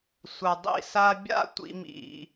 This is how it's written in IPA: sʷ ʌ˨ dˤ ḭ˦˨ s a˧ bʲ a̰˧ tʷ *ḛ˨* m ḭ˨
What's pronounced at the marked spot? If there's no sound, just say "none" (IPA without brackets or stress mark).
ḭ˨